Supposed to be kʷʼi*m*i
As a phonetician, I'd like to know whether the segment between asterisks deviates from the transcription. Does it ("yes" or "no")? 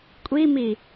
no